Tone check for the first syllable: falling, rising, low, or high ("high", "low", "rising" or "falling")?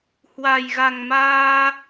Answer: low